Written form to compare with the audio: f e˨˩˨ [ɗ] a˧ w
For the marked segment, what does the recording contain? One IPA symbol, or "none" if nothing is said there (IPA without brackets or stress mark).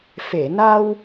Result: n